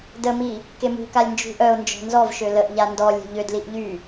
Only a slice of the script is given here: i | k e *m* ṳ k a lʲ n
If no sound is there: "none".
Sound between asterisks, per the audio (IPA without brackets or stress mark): m